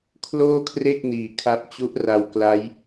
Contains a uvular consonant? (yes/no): no